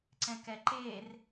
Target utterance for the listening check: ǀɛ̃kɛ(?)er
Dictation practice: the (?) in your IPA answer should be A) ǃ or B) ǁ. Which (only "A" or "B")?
A